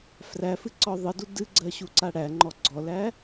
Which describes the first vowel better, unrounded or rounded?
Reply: unrounded